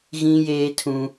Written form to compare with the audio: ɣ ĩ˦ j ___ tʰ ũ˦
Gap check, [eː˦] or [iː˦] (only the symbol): eː˦